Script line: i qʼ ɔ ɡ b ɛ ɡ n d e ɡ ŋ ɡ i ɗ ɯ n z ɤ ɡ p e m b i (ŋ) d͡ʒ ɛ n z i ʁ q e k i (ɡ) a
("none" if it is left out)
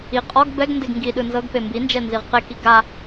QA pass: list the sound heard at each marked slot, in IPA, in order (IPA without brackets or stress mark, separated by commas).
n, ɡ